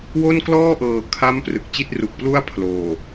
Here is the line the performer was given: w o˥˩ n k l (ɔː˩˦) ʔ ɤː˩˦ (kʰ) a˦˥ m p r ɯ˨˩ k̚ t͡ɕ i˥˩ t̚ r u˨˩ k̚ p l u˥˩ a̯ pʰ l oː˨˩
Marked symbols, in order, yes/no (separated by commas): no, yes